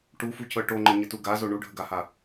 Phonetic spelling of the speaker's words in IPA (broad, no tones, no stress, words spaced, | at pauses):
ʈufucɤ ʈoŋ͡ǃəɲətu ɡazo ɳuɖʱəɡaha